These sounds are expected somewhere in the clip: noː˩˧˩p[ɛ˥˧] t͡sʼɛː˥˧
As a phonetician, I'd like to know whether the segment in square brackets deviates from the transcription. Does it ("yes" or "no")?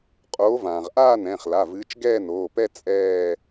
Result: no